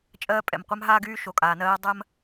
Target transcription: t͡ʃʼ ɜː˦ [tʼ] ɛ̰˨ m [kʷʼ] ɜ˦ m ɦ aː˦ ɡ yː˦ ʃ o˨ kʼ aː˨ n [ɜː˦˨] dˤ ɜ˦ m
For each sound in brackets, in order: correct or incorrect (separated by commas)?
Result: incorrect, incorrect, incorrect